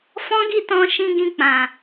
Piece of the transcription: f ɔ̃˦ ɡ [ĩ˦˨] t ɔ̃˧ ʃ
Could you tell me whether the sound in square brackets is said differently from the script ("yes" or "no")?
yes